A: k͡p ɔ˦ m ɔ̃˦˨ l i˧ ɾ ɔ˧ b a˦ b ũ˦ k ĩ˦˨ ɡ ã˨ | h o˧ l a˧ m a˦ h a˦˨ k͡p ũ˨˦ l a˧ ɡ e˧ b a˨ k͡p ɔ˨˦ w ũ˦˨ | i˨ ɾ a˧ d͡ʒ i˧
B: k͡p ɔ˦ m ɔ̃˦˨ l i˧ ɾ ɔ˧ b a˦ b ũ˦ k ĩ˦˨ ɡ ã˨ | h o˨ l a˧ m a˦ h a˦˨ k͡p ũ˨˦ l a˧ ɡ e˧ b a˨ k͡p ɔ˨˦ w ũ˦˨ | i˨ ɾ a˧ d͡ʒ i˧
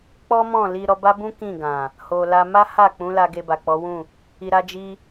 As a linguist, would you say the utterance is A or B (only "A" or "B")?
B